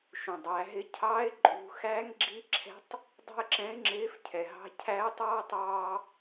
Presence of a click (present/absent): present